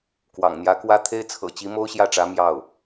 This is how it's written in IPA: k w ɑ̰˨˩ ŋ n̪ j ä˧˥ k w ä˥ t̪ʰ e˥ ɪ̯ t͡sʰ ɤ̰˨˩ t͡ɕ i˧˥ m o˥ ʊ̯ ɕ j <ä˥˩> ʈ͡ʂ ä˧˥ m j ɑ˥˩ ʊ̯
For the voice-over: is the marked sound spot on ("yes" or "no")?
yes